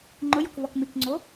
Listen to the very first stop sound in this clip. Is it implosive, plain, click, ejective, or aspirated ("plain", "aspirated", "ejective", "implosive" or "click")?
click